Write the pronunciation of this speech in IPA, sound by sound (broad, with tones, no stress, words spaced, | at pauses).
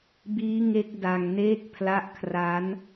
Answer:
biː˦˥ŋe˦˥k̚ da˧ŋ neː˦˥k̚ pʰla˦˥ʔkʰra˦˥n